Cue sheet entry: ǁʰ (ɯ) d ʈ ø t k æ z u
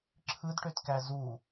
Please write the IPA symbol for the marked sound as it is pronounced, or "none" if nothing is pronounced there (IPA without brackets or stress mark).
ɯ